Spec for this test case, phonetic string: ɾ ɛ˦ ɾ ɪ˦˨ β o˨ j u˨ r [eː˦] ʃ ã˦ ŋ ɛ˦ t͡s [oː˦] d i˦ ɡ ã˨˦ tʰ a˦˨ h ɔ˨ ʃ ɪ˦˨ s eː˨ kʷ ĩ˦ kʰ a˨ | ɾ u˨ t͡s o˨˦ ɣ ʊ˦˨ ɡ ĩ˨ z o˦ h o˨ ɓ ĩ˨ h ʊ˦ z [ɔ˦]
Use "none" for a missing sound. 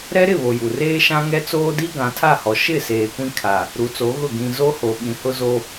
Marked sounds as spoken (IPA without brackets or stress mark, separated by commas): eː˦, oː˦, o˦